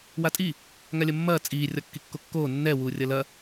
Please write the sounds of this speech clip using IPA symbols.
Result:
w a tʼ i | ŋ a lʲ ɐ mː ɐː t͡sʼ iː rʲ ɒ kː i kː o kː oː nː ɛ w uː rʲ ɐ l ɐ

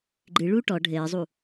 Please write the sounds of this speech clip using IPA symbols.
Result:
ɡ͡ǃ ɨ ɭ u ʈ ɔ ɖʱ ɘː zˤ u

